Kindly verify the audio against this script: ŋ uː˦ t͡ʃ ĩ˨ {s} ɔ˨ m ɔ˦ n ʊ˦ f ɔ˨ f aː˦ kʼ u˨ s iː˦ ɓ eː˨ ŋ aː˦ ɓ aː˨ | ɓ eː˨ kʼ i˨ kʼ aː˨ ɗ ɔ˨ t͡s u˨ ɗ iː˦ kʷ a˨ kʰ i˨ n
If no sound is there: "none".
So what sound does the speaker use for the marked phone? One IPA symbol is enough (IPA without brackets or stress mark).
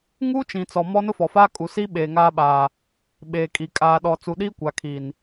t͡s